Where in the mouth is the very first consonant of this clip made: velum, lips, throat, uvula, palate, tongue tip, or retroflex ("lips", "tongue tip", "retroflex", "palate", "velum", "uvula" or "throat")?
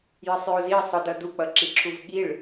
palate